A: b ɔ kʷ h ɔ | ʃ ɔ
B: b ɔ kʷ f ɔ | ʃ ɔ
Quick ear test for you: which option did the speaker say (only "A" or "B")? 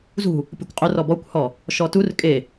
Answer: A